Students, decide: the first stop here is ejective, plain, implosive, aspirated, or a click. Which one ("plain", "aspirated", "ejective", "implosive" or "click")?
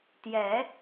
plain